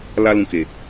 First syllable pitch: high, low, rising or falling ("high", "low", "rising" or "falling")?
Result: high